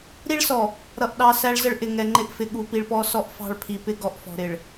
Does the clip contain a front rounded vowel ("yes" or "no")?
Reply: no